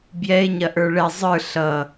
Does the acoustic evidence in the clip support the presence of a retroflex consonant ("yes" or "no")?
yes